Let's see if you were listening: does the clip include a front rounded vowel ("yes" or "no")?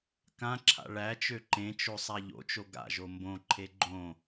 yes